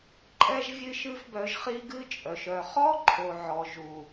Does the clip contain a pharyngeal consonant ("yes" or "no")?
yes